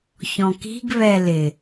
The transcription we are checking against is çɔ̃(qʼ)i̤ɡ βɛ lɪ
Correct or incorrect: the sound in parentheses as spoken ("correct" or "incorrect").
incorrect